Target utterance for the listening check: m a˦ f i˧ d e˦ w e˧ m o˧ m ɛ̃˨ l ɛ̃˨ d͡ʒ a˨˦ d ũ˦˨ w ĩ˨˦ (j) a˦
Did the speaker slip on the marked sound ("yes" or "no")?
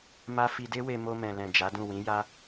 no